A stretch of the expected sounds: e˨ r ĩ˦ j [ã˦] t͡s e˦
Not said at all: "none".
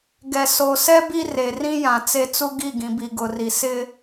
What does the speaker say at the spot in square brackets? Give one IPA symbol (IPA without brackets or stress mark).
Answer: ã˨